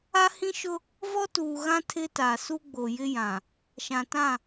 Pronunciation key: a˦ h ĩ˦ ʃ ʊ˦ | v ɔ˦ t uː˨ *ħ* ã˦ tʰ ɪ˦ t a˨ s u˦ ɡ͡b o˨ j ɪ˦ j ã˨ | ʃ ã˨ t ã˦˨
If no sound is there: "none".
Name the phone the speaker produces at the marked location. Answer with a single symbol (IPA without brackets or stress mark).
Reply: ɣ